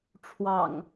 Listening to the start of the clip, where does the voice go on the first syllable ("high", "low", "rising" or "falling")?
low